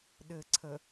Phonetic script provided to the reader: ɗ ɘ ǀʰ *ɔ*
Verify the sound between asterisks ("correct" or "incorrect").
incorrect